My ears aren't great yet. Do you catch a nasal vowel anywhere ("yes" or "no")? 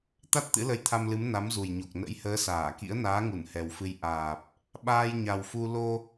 no